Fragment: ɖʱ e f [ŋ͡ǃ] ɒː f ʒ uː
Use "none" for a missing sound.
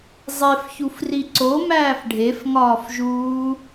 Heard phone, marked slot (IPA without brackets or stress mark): ŋ